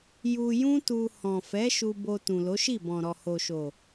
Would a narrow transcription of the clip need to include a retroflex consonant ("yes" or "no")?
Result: no